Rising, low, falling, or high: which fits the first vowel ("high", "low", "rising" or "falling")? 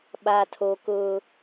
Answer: high